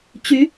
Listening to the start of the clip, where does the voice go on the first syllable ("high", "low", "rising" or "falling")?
rising